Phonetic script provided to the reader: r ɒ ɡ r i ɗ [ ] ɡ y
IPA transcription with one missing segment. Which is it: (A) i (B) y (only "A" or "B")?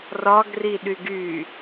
B